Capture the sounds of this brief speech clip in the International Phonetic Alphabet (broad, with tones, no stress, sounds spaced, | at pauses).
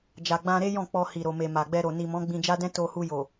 d͡ʒ a˨ ɡ͡b ã˧ ɾ e˦ j ɔ̃˦˨ k͡p ɔ˧ h i˨ ɾ o˨ m e˨ m a˨ ɡ͡b ɛ˧ ɾ o˨ n i˨ m ɔ̃˨˦ ɡ͡b ĩ˧ d͡ʒ a˦ d ɛ̃˦ t o˧ h u˧ j o˨